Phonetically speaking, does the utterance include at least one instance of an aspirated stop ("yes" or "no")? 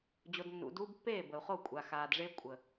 no